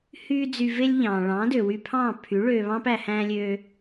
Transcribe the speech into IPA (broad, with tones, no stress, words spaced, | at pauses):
hyː˦ d͡zy˧ ve˦lʲ ʎɑ̃ː˨ ɭɑ̃ː˨˦dø˨wy˧pʰɑ̃ː˦˨ pʰy˨˦ ɭøː˧βɑ̃ː˦p æ˧hæ̃ː˦lʲøː˦